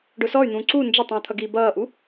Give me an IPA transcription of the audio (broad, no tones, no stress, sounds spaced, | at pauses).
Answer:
ɖ ʊ s ɔ y̯ n̪ ũː ǀ u n d͡ʒ ə tˤ ĩ u̯ t̪ʰ ʌ ɡ iː b ʌː ʔ u